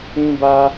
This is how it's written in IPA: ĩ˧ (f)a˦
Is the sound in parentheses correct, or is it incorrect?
incorrect